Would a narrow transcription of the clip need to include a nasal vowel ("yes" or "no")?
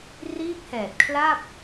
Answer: no